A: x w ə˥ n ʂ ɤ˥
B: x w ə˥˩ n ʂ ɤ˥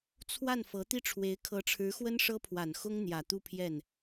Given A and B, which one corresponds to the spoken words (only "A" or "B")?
A